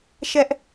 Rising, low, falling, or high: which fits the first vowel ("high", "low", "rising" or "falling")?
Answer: high